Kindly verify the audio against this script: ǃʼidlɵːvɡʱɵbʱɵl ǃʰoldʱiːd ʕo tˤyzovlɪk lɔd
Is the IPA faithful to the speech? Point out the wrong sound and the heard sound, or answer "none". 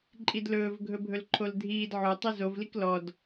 ɪ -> i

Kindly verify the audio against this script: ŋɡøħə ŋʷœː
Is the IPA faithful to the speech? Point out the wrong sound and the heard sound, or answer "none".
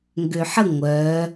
none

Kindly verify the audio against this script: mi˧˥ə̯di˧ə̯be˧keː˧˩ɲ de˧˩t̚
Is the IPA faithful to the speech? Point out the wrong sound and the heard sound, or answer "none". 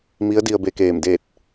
ɲ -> m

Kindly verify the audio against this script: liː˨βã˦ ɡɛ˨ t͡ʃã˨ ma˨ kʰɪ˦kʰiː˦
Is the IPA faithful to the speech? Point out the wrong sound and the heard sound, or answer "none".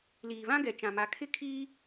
none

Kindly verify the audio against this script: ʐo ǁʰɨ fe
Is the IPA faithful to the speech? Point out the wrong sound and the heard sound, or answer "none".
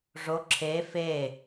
ɨ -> e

